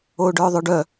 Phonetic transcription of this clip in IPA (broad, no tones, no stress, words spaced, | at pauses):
oːɖœːðˤœɖœ